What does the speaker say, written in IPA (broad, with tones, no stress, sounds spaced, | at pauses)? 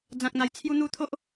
d͡z ã˨ k̚ n̪ a˨˩ j t͡sʰ j u˧ n̪ u˧ t̪ʰ o˦ ʔ